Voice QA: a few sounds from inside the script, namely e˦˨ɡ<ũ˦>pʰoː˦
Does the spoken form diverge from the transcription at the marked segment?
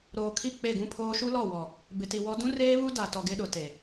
no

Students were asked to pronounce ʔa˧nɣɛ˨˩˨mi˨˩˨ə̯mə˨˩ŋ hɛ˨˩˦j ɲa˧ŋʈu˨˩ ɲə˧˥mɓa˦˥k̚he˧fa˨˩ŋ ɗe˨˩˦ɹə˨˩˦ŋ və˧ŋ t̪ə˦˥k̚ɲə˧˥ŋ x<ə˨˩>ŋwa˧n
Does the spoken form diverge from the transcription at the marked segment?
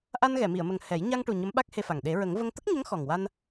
yes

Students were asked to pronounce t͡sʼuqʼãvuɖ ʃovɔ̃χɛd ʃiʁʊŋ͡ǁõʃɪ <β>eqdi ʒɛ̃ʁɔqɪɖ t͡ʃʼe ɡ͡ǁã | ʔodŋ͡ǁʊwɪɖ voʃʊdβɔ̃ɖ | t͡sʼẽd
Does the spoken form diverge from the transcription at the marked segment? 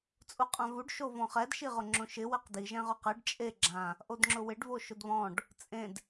yes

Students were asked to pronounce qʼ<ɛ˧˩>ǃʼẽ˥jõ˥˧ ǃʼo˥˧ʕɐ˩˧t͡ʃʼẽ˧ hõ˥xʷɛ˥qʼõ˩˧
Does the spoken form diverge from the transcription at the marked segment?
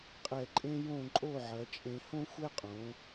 no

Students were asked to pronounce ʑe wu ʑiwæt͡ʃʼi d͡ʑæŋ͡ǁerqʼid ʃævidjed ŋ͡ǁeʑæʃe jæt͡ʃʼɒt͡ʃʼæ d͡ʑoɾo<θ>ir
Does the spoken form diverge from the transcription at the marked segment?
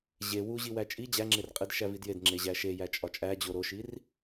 yes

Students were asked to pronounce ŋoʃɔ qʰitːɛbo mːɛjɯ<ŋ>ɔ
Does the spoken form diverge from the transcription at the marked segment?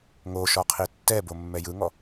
no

